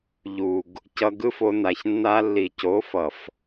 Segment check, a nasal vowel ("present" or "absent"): absent